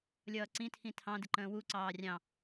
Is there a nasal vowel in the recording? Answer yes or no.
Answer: yes